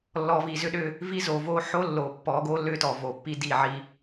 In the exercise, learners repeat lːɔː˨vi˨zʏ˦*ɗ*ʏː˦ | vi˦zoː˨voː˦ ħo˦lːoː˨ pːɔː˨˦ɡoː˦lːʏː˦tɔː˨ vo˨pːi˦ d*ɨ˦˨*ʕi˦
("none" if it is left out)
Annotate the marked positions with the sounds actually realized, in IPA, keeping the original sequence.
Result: ɗ, i˦˨

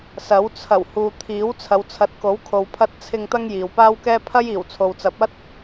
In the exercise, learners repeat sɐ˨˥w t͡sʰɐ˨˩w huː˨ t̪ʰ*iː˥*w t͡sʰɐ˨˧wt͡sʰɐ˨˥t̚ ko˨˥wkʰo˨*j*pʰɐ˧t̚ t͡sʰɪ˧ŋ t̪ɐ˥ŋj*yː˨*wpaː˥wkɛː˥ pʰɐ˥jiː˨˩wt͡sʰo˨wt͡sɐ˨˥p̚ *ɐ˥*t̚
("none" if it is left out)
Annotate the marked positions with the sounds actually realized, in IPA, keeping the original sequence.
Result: iː˨˥, w, iː˨, ɐ˥

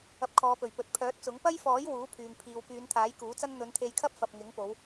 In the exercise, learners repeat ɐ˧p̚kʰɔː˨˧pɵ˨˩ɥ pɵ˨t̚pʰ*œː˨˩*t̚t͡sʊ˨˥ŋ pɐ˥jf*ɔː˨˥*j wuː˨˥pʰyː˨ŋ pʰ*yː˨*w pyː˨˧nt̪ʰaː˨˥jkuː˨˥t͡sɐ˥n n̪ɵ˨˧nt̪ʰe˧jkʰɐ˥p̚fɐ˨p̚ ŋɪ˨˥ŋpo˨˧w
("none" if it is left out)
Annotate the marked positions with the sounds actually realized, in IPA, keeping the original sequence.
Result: œː˨˥, ɔː˨˥, iː˨

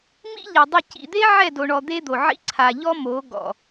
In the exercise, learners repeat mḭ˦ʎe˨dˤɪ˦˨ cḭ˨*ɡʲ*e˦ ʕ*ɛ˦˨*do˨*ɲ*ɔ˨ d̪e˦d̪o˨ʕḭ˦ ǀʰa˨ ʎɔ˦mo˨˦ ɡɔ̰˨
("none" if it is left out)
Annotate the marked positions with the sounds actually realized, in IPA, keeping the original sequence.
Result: d̪, ɛ˦˨, ɳ

